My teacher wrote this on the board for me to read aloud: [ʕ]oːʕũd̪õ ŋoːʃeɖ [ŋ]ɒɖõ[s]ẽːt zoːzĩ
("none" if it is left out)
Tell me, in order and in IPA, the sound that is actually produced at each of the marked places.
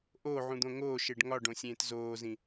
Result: ʔ, ŋ, sʲ

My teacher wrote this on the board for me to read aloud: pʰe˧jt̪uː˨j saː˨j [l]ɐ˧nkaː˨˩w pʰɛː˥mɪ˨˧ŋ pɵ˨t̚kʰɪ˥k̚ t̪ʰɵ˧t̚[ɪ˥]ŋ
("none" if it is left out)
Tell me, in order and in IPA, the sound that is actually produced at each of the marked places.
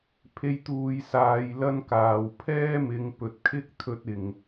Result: l, ɪ˨˩

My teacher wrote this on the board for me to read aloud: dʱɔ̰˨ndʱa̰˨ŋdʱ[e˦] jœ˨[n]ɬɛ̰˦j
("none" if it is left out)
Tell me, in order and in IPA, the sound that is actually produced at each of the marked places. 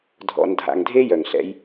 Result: e˦, ŋ

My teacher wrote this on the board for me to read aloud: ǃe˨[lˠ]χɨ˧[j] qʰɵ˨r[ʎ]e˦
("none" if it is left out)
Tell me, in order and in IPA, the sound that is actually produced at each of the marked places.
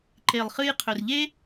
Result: lˠ, j, ʎ

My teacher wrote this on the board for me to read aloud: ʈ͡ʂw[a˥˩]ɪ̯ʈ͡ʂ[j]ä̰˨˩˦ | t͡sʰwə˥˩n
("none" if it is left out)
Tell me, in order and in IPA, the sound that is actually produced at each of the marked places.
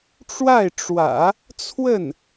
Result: a˥˩, w

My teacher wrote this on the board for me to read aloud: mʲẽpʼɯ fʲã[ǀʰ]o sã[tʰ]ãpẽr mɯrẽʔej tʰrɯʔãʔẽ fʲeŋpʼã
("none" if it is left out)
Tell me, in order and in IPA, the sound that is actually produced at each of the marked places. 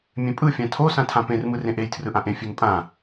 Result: tʰ, tʰ

